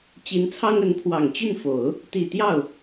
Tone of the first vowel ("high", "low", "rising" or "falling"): rising